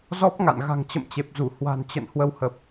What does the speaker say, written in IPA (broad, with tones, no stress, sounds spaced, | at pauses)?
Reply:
z ɔ˦˥ p̚ ŋ a̰˧˨ n ɣ a̤˨˩ ŋ t͡ɕ ə̰˧˨ m t͡ɕ e˨˩ p̚ z u˧˩ h w a̤˨˩ n t͡ɕ ə̰˧˨ n h w ə˧ w h ə˨˩ p̚